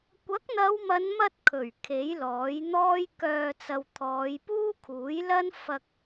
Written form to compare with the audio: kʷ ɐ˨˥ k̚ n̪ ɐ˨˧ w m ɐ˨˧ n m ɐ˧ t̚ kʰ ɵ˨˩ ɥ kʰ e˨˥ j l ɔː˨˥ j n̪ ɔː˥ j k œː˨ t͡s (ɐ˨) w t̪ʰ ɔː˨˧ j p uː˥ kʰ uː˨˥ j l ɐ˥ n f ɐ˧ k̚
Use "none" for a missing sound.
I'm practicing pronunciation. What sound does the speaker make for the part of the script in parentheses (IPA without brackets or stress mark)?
ɐ˨